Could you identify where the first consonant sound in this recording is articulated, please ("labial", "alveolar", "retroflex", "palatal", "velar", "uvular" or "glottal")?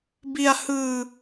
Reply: labial